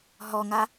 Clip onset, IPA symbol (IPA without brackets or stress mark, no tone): ɦ